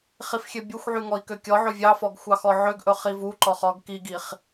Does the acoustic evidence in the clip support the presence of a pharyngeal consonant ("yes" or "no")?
yes